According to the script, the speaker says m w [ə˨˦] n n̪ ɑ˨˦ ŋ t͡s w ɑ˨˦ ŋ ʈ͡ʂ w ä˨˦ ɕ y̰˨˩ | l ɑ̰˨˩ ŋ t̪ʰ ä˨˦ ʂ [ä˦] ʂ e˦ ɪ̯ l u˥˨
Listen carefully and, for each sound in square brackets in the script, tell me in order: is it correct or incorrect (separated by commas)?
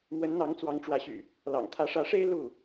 correct, incorrect